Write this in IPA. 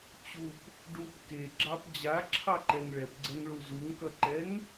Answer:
t͡ɕ u p | ɖ u p k e ɡ͡ǁ ɑ p d͡ʑ a ǁʰ ɑ ǃ ɛ ŋ ɭ ɛ p ɡ͡ǀ ɛ ŋ ɭ u z u ŋ k ʌ ǃ ɛ ŋ

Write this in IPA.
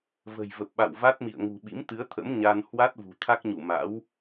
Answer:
v ə̤˨˩ j v ə˨˩ p̚ ɓ a̰˧˨ w v a˦˥ t̚ m ḭ˧˨ ə̯ ŋ ṳ˨˩ ɓ ḭ˧˥ m t̪ ɨ˨˦ ə̯ t̪ʰ ə̰˧˥ m ɲ a˧ n h w a˦˥ t̚ v ṳ˨˩ t̪ʰ a˦˥ k̚ ɲ u˧˩ m a̰˧˥ w

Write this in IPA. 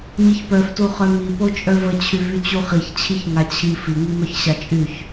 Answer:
ɲ i ç p œ f t u χ œ m i p o t͡ʃʼ œ v ə t͡ɕʰ y v y t͡ɕ u χ i ç t͡ɕʰ i ç ŋ a t͡ɕʰ i f i ŋ i m œ ç ɕ a t͡ʃʼ y ç

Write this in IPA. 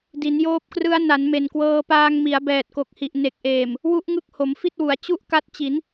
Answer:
d i˩˦ n j oː˦˥ p̚ k r ɯ˦˥ a̯ n a˩˦ n m e˨˩ n k w ɤː˧ p aː˧ ŋ m i˩˦ a̯ b ɛː˨˩ t̚ k o˨˩ k̚ h i˨˩ ʔ n e˨˩ k̚ ʔ eː˨˩ m | w u˦˥ ʔ ŋ ɯ˦˥ k̚ h o˩˦ m f i˥˩ t̚ w u˩˦ a̯ t͡ɕ u˥˩ ʔ k a˦˥ t̚ t͡ɕ i˩˦ n

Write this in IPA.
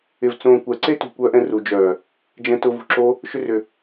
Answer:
ɪ v t͡s õː kʷ ɛ ǀ e t ṳ kʷ œː ʔ ɛ̃ r u d͡ʒ œː | d͡ʒ ɛ̃ t ʊ v ṳ ǁ o | ʃ ʏ r ʏ

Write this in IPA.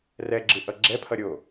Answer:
r ɛ ɡ͡ǁ ɯ ʔ ʌ ɡ͡ǁ ɛ pʰ ʌ ɾʲ o

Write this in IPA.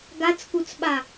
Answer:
ɡ a t͡s k u t͡s ɓ a

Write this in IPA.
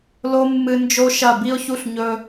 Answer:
l o˦ mː ɨ˧ n d͡ʒ o˦ ʃ ɐ˦˨ b i˦ ʊ̯ ç u˦ ɬ ɲ ɵ˧

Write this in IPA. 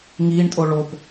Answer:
ŋ iː ɳ tʼ o ɭ o p

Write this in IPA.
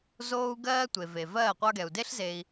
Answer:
z oː˧ u̯ ɡ ɜː˧ tʷ e˨ v e˨ v ɜː˦˨ qʷ ɑ˧ ɡ ɛ˨ u̯ d e˦ ɬ z eː˧ i̯

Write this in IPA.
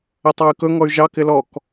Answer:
ə tˤ ɑ y̯ k ɵ ŋ ɔ y̯ ʒ ɑ k ɪ l ɔ k

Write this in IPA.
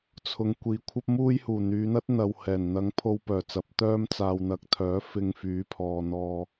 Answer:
t͡sʰ ʊ˨ ŋ kʷ iː˨ kʷʰ ɐ˥ p̚ m uː˥ j h uː˨˩ n̪ yː˨˧ n̪ ɐ˥ t̚ n̪ ɐ˨ w h ɛː˨˩ n n̪ ɐ˨˧ ŋ pʰ o˧ w p œː˨˩ t͡s ɐ˨˥ p̚ t̪ œː˥ m t͡s aː˨ w n̪ ɐ˨˥ k̚ t̪ʰ œː˨˥ f ɪ˧ ŋ f yː˨˥ pʰ ɔː˨ n̪ ɔː˧

